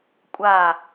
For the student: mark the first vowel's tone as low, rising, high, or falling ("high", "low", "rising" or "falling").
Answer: falling